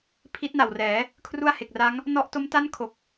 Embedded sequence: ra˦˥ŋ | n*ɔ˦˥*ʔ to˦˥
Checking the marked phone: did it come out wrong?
yes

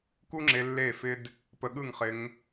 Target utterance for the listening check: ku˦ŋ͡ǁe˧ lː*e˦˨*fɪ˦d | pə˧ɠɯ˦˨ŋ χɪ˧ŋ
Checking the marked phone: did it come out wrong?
no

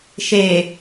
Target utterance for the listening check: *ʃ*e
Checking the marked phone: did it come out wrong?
no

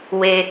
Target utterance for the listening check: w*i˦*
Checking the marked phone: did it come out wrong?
yes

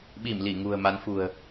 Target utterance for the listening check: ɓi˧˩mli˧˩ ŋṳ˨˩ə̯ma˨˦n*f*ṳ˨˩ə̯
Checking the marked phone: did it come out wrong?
no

